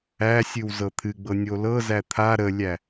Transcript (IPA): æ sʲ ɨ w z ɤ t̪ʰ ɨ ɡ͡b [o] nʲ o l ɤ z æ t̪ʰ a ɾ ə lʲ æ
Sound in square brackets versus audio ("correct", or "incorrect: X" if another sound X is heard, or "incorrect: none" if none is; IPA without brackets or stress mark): incorrect: ɤ